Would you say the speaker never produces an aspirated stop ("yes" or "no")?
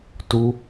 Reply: yes